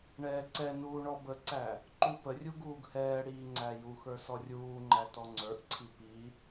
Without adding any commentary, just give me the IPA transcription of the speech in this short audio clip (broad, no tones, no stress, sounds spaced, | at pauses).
ɳ ɛː ǀ ɛ n uː ɳ ɔ b ə ǀ æ | ǃ u p ə rʲ u ɡ uː ɡ h ɛː ɽ iː ŋ͡ǀ æ j u x ə˞ s ɔ rʲ uː ŋ͡ǃ æ t ɔ ŋ͡ǀ ə˞ ʔ ǀʰ i p i